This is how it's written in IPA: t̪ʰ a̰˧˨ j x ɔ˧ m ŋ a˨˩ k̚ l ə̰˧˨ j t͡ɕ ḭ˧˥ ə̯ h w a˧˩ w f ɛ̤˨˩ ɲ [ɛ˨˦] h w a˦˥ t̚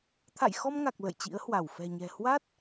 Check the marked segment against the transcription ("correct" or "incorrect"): incorrect